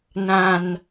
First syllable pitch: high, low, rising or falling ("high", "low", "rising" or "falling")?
low